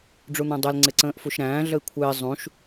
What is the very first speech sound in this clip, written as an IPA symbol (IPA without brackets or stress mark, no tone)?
ɖ͡ʐ